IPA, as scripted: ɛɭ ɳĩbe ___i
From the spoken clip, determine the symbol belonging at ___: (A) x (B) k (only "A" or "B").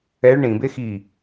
A